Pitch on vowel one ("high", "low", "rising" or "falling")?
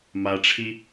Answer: low